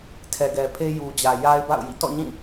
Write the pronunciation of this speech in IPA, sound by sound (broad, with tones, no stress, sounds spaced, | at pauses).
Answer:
tʰ ɛ˨ ɡ ɛ˨ pʰ e˦ j u˨ d͡ʑ ä˨ j a˦ ɪ̯ b a̰˦˨ ʊ̯ j ḭ˦˨ t ɔ̰˦˨ ɲ ĩ˦˨